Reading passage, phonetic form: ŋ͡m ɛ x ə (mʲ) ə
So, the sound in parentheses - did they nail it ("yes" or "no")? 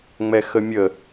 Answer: yes